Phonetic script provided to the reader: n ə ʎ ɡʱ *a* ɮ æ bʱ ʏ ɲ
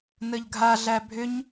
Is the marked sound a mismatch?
no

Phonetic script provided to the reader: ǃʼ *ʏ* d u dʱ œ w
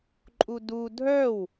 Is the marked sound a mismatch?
yes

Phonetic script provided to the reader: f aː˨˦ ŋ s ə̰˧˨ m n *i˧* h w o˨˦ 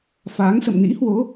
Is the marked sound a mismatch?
yes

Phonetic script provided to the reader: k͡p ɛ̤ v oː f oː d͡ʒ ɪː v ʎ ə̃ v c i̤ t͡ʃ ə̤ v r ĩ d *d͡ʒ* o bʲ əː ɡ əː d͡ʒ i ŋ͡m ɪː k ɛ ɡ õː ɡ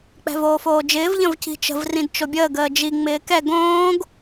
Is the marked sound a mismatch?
yes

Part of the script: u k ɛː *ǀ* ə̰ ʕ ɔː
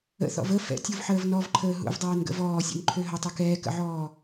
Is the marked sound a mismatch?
yes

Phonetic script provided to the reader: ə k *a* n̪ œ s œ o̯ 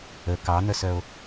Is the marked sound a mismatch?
yes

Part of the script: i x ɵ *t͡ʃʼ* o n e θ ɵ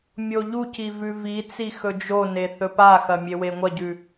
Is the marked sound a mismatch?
yes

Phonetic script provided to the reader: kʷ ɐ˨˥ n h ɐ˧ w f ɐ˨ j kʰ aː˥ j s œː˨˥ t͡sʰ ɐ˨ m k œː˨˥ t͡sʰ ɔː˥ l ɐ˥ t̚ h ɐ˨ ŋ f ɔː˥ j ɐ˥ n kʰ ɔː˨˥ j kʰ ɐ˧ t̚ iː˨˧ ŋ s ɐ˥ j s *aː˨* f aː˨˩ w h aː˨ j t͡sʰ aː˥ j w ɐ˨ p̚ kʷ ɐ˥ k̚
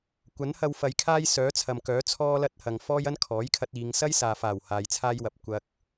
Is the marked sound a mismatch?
no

